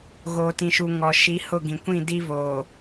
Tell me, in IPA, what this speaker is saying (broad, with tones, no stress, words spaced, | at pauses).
ɣoː˨tĩ˨ʃu˨ ŋɔ˨ ʃi˨˦hʊ˦˨ɡĩ˨kʷĩ˦˨ di˦voː˨